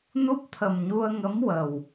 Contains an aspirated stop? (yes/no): yes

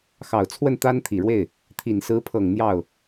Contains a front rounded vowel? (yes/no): no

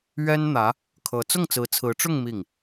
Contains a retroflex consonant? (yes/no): yes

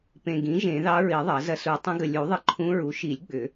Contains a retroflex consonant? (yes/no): no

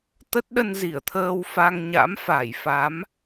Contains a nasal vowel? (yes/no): no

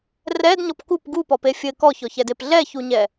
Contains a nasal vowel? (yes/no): no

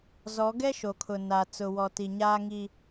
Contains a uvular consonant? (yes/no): no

